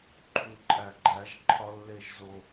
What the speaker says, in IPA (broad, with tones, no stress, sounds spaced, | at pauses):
ǃʰ u˨ ǃʼ æ˨ ɡ͡ǃ æ˨˦ ʒ ǃʰ ɒ˦ lː e˦ ʒ z o˦